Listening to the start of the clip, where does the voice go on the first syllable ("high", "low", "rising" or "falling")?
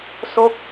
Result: falling